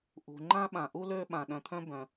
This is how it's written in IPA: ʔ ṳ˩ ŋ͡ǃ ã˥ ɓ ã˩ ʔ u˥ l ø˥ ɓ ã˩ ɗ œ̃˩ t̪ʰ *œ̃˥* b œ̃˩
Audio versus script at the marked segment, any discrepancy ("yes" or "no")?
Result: no